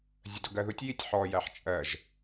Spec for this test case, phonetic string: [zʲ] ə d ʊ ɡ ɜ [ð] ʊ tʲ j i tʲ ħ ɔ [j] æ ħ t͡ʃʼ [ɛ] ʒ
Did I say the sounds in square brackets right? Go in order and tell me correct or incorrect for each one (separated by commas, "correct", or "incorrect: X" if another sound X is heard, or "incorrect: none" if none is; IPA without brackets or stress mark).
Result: correct, correct, correct, incorrect: ɜ